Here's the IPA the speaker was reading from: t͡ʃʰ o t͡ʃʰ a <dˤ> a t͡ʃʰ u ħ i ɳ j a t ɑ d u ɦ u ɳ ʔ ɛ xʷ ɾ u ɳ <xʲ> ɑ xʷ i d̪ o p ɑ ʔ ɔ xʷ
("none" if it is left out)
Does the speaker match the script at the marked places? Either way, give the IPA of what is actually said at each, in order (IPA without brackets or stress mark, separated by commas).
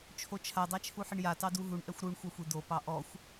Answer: dˤ, xʷ